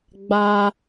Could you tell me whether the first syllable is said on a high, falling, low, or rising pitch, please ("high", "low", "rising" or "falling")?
high